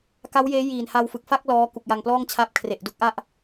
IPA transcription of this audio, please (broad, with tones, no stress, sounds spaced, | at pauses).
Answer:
k a˦˥ w j eː˦˥ j iː˨˩ n h a˧ w f ɯ˨˩ k̚ f a˥˩ k̚ l ɔː˦˥ k u˨˩ k̚ j a˧ ŋ p l ɔː˥˩ ŋ t͡ɕʰ a˦˥ p̚ kʰ r e˨˩ ʔ d u˦˥ k̚ ʔ a˥˩ ʔ